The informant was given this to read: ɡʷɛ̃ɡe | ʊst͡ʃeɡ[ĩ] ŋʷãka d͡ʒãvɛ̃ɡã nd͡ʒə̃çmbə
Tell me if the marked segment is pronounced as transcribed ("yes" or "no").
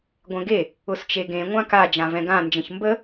no